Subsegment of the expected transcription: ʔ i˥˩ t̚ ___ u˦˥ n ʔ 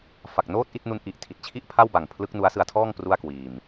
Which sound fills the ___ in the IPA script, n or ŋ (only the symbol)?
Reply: n